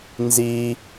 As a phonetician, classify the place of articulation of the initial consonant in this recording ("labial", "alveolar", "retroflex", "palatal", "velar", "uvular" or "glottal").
alveolar